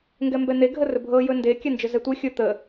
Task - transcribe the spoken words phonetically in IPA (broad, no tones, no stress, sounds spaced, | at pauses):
ŋ ɡ ɛ m b ɛ n̪ e ɡʱ ə r ɵ bʱ ɤ j ɵ n d e kʲ ɛ n d͡ʒ ɵ z ɛ tʷ e xʲ ɵ t̪ ə